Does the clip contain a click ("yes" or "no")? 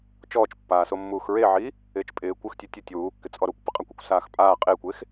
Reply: no